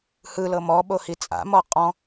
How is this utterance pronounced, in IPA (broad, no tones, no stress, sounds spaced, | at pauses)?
h ɯ l ɤ m ɔ ɓ o h i t͡sʼ a̰ m ɔ qʼ ɔ̃